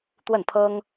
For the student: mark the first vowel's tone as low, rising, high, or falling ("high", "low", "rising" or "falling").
falling